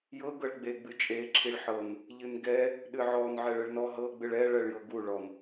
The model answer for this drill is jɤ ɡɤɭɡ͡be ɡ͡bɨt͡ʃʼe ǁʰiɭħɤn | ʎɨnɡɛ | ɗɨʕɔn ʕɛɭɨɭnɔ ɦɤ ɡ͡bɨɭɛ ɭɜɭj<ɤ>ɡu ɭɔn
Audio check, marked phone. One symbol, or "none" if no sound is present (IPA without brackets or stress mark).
ɤ